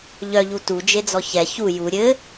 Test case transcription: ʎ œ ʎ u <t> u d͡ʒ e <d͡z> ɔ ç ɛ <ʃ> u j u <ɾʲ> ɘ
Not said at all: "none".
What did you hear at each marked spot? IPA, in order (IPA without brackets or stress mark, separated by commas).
t, d͡z, ç, ɾʲ